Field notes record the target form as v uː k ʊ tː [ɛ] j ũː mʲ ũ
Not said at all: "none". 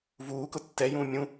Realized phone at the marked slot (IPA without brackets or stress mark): ɛ